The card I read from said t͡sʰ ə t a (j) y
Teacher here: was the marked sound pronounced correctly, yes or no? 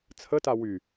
no